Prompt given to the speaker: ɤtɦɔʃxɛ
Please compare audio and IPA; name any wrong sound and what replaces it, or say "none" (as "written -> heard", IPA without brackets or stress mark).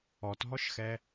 ɤ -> ɔ